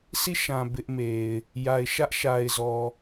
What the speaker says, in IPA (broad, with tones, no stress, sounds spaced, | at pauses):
s i˦˨ ʃ ã˨ b ɪ˦ ʔ m e˨ ɪ̯ | j a˨ ɪ̯ ʃ ä˦ ʔ ʃ a˨ ɪ̯ z ɔ˨